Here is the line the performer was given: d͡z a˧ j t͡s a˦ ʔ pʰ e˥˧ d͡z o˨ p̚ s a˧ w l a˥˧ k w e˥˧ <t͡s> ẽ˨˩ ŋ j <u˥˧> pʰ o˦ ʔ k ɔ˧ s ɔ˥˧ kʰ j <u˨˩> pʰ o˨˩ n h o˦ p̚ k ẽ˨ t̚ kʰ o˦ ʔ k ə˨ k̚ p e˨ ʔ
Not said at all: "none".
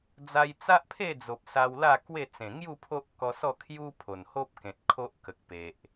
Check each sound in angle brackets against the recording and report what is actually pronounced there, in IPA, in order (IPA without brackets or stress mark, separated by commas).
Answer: t͡s, u˥˧, u˦